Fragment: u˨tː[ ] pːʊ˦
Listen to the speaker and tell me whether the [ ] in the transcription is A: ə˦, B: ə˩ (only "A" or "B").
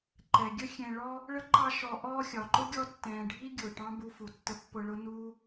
A